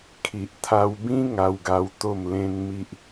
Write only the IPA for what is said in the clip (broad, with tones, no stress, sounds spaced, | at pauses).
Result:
kʰ i˨ ʔ t̪ʰ a˧ w b ĩ˦ ŋ a˦ w ɡ a˦ w t̪ o˥˧ m l ẽ˦ n m i˦ ʔ